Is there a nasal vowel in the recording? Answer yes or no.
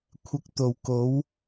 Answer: no